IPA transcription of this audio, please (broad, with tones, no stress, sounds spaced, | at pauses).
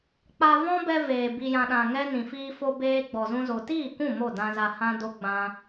k͡p a˧ v ɔ̃˦ b ɛ˧ v eː˨ b i˨ j ã˨ ɗ ã˨ ŋ ɛ˧ n ĩ˨ f iː˧ f o˧ b eː˧ ɡ͡b ɔ˨ z ũ˧ z o˨ t iː˦˨ k ũ˦˨ m o˦˨ d ã˧ z a˧ h ã˦ d o˦ ɡ͡b ã˦